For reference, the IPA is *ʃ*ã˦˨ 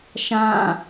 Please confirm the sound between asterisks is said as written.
yes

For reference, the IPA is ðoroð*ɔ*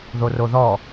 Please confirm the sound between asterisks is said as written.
yes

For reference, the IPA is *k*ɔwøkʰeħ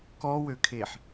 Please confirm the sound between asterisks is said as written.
yes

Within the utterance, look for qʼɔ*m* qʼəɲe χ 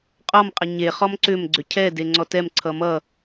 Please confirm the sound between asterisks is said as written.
yes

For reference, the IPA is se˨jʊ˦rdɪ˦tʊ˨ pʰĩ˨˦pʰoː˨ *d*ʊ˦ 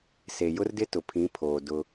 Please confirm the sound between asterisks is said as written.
yes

